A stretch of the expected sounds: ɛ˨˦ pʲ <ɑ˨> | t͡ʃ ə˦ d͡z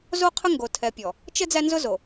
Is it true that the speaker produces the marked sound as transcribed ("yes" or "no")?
no